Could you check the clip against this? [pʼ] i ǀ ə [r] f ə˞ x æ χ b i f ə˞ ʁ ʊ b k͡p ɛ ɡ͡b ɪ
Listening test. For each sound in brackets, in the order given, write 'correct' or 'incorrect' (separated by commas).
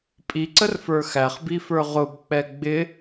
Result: correct, correct